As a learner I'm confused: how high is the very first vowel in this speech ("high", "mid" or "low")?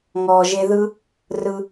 mid